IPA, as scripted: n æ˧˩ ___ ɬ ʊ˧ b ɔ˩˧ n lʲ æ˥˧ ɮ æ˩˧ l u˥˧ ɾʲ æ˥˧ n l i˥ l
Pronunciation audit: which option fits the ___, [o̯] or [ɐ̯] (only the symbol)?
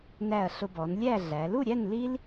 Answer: ɐ̯